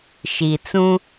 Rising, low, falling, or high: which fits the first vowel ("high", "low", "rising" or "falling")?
low